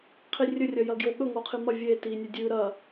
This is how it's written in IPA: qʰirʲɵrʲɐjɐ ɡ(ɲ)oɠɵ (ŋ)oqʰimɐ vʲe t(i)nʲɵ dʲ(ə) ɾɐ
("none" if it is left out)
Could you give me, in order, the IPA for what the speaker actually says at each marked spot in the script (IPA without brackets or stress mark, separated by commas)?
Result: j, ŋ, i, ʉ